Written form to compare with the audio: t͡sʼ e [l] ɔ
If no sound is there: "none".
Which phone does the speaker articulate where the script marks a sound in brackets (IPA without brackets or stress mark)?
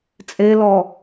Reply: l